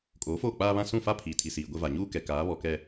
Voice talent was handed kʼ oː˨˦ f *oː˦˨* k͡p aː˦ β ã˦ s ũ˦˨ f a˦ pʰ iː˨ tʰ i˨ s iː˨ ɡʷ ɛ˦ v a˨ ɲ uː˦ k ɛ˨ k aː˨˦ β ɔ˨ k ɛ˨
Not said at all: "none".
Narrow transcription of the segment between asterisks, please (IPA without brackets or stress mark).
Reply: oː˦˨